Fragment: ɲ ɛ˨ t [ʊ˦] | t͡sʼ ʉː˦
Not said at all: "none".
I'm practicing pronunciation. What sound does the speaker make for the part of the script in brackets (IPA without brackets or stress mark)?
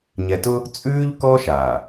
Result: ʊ˦